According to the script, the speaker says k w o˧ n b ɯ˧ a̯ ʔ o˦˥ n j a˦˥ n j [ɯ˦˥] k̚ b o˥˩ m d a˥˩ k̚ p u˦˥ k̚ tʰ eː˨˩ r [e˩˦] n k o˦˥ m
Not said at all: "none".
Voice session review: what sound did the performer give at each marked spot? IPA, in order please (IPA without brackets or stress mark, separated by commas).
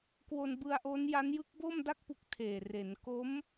ɯ˦˥, e˩˦